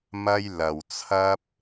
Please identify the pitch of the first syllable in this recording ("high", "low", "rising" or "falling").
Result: high